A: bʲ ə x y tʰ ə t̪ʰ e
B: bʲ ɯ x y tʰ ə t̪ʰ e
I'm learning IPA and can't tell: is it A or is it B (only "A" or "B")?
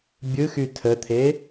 B